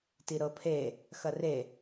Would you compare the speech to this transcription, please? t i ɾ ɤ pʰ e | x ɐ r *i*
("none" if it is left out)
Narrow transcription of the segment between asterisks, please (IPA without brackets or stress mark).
e